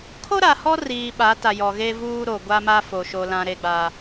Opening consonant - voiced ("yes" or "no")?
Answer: no